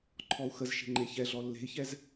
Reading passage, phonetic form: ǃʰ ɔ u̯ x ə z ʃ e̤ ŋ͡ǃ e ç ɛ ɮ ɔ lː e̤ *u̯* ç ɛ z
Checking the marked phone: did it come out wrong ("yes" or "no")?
yes